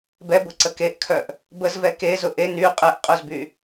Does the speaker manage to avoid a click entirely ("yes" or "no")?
no